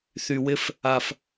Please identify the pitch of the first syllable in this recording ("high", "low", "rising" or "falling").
low